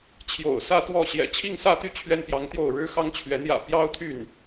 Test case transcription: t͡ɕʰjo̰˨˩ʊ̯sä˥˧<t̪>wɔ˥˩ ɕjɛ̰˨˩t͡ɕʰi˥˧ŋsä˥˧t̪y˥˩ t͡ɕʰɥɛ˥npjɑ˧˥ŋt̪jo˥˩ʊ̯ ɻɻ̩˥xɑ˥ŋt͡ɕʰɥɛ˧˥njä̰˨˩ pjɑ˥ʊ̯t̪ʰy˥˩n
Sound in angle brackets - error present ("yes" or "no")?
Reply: no